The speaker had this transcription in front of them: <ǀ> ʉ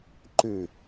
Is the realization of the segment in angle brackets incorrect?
yes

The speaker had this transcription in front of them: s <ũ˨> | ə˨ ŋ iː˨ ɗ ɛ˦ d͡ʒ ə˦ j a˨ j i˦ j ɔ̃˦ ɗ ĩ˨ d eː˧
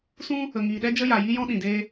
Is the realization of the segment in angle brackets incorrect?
yes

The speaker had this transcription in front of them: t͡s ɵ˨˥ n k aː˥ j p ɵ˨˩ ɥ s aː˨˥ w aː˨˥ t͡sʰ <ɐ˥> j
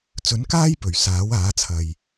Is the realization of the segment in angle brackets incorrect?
yes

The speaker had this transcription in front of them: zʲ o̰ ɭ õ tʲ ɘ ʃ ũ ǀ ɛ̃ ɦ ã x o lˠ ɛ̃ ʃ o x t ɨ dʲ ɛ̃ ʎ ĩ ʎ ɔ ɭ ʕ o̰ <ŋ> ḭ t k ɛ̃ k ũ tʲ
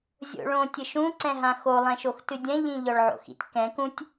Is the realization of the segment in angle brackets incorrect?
yes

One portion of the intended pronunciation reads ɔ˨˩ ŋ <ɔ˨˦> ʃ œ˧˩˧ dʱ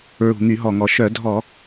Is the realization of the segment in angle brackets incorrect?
yes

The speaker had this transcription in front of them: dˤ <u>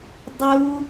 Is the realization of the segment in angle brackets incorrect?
no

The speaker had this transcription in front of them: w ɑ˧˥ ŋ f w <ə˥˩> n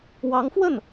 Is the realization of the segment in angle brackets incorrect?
no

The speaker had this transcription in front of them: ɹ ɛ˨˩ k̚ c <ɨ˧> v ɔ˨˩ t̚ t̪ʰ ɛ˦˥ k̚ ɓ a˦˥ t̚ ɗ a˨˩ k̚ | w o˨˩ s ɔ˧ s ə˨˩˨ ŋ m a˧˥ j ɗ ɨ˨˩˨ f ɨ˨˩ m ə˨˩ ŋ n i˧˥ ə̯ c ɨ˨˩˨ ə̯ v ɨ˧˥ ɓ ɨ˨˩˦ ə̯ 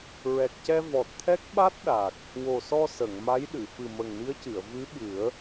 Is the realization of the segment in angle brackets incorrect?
yes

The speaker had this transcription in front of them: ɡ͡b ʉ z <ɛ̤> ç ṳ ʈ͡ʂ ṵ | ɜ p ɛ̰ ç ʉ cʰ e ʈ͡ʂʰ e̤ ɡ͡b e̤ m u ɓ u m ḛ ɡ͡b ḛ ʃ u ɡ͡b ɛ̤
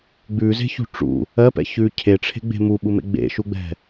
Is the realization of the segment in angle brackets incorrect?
yes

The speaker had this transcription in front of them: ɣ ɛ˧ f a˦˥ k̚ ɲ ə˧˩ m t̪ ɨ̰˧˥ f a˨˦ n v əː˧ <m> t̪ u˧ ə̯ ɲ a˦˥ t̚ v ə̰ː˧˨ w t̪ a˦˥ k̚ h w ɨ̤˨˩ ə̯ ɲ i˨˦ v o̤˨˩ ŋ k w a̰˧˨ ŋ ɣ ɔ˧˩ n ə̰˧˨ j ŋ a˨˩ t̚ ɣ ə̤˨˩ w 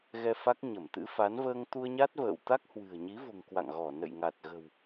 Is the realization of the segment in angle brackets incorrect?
yes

